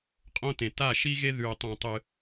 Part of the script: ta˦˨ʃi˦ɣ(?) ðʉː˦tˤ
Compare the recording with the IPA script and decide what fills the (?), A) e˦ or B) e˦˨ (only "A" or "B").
A